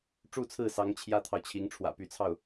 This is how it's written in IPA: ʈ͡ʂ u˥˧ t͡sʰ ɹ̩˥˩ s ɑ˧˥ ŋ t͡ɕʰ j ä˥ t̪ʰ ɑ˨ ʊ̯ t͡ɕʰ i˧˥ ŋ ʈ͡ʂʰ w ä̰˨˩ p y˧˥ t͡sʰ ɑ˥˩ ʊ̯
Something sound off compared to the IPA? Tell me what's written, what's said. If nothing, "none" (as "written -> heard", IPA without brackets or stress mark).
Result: none